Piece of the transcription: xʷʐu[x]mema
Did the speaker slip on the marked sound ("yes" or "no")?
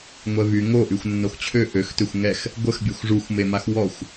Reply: yes